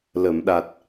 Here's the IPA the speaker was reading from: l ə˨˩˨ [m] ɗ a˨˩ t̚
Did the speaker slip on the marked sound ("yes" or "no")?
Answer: no